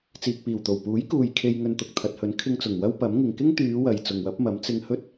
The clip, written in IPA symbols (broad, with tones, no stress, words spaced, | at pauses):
t͡siː˨k̚piː˨˩wt̪o˨˩w puː˨˥jkuː˨j kʰe˧j ŋɵ˧nt̪ʊ˨k̚ t̪ʰɐ˨t̚hɵ˨˥n kʰɪ˧ŋt͡sʊ˨˩ŋ wɐ˥wpɐ˨˥mŋɪ˨ŋ kɪ˥ŋt̪yː˨˧wɐ˨j t͡sʊ˨ŋwɐ˨˥p̚ mɐ˨˥m t͡sɪ˧ŋ hɵ˥t̚